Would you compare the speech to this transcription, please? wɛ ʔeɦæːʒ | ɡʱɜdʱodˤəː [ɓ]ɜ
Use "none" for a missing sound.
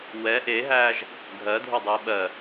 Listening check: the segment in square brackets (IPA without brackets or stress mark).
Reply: ɓ